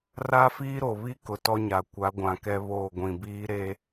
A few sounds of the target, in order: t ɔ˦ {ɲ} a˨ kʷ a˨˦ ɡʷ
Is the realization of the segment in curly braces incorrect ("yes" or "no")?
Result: no